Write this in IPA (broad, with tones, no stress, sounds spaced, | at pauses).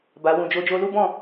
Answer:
b a˨ w ũ˨ d͡ʒ o˧ d͡ʒ o˧ l u˦ b ɔ̃˦˨